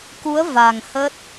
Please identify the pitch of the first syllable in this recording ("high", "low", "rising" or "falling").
rising